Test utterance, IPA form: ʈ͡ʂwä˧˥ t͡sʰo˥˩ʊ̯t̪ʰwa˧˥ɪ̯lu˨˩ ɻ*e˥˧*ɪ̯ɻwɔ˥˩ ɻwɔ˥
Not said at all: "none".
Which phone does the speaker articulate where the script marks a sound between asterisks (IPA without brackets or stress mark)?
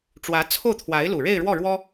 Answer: e˥˧